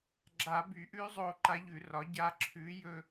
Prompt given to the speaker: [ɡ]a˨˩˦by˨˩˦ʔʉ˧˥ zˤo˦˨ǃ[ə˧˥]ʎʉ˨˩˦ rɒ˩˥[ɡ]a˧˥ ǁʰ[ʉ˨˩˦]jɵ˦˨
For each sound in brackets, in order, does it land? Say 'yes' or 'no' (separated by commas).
no, no, no, no